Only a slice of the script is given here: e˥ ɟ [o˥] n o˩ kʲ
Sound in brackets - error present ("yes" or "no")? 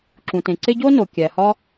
no